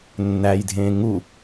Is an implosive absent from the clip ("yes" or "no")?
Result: yes